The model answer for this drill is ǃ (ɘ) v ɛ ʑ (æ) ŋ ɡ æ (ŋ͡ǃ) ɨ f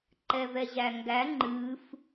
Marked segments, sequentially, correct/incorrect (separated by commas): incorrect, correct, correct